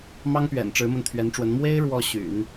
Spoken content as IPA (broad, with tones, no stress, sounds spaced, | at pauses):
m ɑ˥ ŋ p ɥ ɛ̰˨˩ n ʈ͡ʂ ɻ̩˧˥ m ə˧ n t̪ʰ ɥ ɛ˧˥ n ʈ͡ʂ w ə˧˥ n m w e˥ ɪ̯ ɻ w ɔ˥˩ ɕ y̰˨˩˦ n